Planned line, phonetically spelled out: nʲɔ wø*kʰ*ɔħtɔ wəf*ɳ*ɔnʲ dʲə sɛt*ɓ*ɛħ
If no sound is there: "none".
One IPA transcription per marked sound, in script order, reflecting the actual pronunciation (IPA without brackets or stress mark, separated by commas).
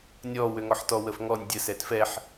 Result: ŋ, ŋ, f